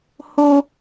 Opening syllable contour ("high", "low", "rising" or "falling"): high